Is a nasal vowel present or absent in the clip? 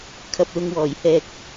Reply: absent